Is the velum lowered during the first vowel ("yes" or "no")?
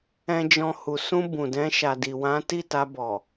yes